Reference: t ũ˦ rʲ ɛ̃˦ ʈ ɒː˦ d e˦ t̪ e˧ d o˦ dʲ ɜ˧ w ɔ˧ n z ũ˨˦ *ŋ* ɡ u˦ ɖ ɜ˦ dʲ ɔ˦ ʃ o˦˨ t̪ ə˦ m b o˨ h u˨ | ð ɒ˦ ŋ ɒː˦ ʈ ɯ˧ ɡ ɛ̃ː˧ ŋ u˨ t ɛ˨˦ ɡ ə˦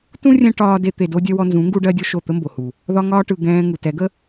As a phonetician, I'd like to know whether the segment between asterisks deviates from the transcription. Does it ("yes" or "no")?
no